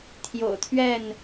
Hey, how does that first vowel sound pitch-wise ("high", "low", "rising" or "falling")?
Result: low